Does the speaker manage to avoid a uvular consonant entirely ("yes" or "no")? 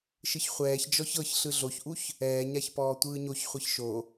no